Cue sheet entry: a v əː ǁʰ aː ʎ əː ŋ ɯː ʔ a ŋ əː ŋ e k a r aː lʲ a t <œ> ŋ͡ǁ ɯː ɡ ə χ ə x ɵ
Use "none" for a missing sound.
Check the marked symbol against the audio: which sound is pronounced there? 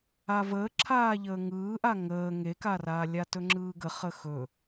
ɵ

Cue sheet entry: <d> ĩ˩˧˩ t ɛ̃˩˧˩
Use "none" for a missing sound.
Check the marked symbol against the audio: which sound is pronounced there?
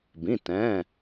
b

